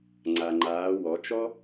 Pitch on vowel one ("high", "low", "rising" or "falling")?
low